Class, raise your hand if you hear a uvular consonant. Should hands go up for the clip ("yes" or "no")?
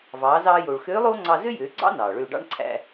no